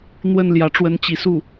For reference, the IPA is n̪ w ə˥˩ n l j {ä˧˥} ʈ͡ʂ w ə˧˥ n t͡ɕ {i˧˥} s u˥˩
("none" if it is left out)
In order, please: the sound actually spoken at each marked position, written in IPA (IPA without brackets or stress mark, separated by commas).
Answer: ä˧˥, i˧˥